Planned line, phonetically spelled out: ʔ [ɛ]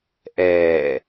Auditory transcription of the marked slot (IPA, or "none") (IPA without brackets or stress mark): ɛː